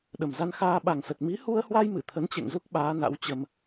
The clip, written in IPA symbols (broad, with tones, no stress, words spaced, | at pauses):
ɗə˨˩mza˧n xaː˧ɓa˨˩ŋsə˨˩t̚ mi˨˦hu˧ə̯hwa˧jmɨ˧˩ t̪ʰə˨˦nt͡ɕḛ˧˨ŋzu˦˥k̚ ɓaː˨˦na̰˧˥w t͡ɕə˧m